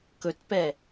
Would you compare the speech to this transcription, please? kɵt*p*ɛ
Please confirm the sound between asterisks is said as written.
yes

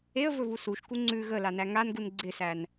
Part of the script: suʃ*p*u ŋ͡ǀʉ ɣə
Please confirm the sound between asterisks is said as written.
no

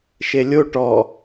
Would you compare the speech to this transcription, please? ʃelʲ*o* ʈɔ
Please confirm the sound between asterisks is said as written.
yes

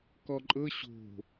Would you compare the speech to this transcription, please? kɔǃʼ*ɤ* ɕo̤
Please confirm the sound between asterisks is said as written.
yes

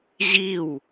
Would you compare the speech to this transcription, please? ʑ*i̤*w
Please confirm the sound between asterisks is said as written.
no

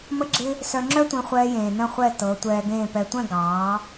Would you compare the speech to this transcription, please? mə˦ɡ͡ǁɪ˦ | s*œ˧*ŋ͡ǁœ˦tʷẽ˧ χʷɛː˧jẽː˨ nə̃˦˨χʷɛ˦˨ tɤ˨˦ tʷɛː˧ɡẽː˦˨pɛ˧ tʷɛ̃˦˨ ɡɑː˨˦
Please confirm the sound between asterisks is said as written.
yes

